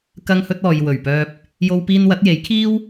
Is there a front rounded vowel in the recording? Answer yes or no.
yes